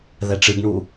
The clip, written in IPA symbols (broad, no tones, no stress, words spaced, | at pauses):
ðɛʈ͡ʂɨɡɳu